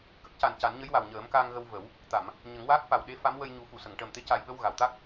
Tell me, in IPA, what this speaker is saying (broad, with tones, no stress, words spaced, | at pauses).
kə˦˥k̚ca˨˩n ca˨˩˦nɲə˧˥jwa˨˩w ɲəː˨˩˦mka˧ŋɣə˧w və˨˩˦w | t̪a˨˩˨m | ɲə˨˩˦ŋwaː˦˥k̚fa˨˩wɗe˧˥ fa˧˥m wə˧jɲu˨˩˦ fu˨˩˨sə˨˩˨ŋʈəː˨˩m t̪e˧˥ca˨˩jɓə˧w ɣa˨˩˨wt̪a˦˥k̚